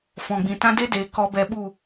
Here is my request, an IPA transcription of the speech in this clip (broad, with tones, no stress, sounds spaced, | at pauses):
f ɔ̃˨ ɡ͡b ĩ˨ t ã˦ d e˦ d eː˨ k ɔ˧ b ɛ˧ ɓ u˦˨